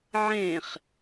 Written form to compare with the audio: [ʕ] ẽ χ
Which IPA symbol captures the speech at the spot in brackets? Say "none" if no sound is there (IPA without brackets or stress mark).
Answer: ʕ